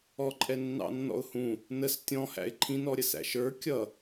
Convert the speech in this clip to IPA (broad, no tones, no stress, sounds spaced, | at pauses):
ɔ ǃʼ ɛ nː ɑ̰ nː ɔ̰ ʊ̯ h ũ | n ə s tʲ ɔ̃ h æ̰ ɪ̯ ǃʰ ĩ n ɔ ɾʲ ə s æ̰ ʃ ə˞ kʲ ʌ